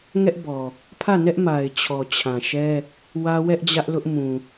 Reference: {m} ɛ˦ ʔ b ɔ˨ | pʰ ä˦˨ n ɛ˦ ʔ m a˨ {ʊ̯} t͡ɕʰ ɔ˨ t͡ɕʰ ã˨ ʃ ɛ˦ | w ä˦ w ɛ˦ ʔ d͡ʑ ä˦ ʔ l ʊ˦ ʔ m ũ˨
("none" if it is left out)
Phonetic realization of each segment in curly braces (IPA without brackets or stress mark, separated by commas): ŋ, ɪ̯